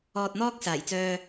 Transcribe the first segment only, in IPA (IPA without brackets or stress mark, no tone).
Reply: ɔː